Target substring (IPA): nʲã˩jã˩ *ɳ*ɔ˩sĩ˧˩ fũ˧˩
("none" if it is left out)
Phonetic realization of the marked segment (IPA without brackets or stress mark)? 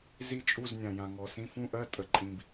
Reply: ŋ